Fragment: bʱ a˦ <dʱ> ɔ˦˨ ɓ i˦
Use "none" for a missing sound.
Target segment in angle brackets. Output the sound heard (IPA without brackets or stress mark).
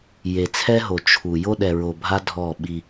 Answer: dʱ